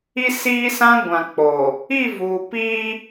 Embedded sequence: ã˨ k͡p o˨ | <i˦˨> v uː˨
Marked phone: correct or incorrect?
correct